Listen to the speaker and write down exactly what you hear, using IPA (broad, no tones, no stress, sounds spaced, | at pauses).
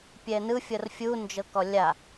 pʲ ɛ n ɯ fʲ ɤ r fʲ u n d͡ʒ ɤ k ɔ lʲ a